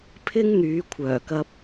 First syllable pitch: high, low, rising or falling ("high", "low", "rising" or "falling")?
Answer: high